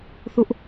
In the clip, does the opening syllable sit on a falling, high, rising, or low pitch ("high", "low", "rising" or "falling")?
high